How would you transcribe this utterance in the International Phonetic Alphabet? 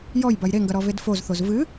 j ɔ j b ɐ j ɾ e ŋ ɡ ɐ ɾ ɔ v e d f o z θ o z v ɨ

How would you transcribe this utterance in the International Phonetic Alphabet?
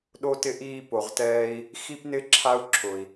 ɗ o˧ t ɪ˧ ʔ iː˧ p o˩ ʁ t ɛː˧ i̯ | x i˥ p n ɪ˥ ǁʰ a˥ u̯ ǁʰ ʊ˩ i̯

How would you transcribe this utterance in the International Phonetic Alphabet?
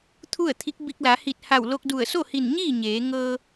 t̪ʰ u˥˨ ə̯ t̪ʰ i˧˥ k̚ b i˧ k̚ l a˩˧ h i˧˩ t̚ h a˧˩ w l o˧ k̚ d u˧˩ ə̯ s o˥˨ h i˧˩ n ɲ iː˥˨ ɲ eː˩˧ ŋ ɤː˧

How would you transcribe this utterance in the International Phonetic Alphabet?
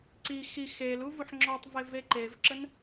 ǀ i x i x e l u v u ħ ŋ͡ǁ ɔ tˤ v e v e ǃ e v ǁ ə n

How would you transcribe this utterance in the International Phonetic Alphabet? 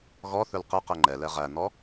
ɣ ɔ θ ɵ l q ɘ q ɘ ŋ͡ǃ ɛ l ɛ ʁ æ n̪ ɔ

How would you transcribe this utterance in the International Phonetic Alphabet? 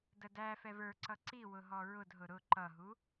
d ə d æ f ɛ v ə˞ ǀ ʌ ǀ i w ʊ ɦ ɔ ɹ ʊ d ɦ ʊ ɾ ʊ ǃ ʌ ɦ u

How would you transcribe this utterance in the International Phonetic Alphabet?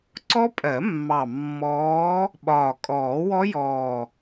ǀ ɔ˦˥ pʼ ɜ˨˩˦ mː ɑ˨˩ mː ɔː˨˦ | ɓ ɒː˨˩ kʼ ɔː˨˩˦ w ɔ˦˥ j ɔː˨˩

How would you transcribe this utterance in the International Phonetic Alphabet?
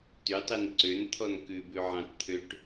t y tˤ i n ǀ ø n t̪ʰ ɔ n k ʉ b ʉ ʕ ɑ̃ t t̪ʰ ø ʈ

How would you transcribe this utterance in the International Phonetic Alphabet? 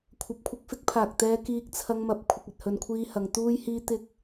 kʷʰ ɐ˨˥ p̚ kʷʰ ɪ˧ k̚ f ɪ˥ k̚ pʰ aː˨ k̚ t̪ ɛː˧ k iː˧ k̚ t͡sʰ ɐ˧ ŋ m ɐ˨ p̚ kʷʰ ɪ˧ k̚ ɐ˨ t̚ h ɵ˨ n kʷʰ iː˧ h ɐ˨˧ ŋ t̪ uː˥ j h iː˥ t̪ ɪ˥ k̚

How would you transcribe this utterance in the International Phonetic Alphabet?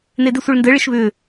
n e d ɪ sʷ i ɭ n d ɘ ɭ ɪ ʃ β ʏ

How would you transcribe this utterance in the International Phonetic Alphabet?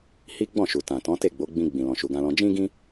h i˦ ɡ͡b ɔ̃˦˨ ʃ u˨ t ã˨ t ɔ̃˨˦ t e˦˨ ɡ͡b o˨˦ ɡ͡b ĩ˧ ɡ͡b ĩ˨ l ɔ̃˨ ʃ u˨ ɡ ã˧ l ɔ̃˧ d͡ʒ ĩ˦ ɡ ĩ˦

